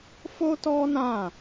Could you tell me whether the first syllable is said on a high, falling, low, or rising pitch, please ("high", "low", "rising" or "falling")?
high